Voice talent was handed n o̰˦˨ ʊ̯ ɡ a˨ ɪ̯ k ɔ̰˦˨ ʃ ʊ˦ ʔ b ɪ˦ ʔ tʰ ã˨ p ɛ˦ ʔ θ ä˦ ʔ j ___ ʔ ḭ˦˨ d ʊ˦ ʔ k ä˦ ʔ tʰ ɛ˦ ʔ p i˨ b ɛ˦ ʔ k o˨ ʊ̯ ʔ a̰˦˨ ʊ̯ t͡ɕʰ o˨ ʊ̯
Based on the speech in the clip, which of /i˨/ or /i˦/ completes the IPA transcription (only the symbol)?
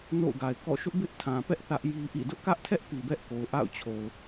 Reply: i˦